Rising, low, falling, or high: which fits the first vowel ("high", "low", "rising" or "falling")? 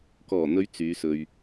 low